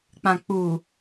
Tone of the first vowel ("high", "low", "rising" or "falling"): low